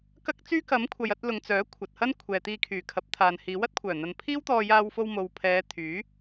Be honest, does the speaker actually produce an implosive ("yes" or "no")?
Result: no